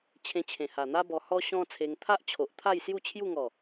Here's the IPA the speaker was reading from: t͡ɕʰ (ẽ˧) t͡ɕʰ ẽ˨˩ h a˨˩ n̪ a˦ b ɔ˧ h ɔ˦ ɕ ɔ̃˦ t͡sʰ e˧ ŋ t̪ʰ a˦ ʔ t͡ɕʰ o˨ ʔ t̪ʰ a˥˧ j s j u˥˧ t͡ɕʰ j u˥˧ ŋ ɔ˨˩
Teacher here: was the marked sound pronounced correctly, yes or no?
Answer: yes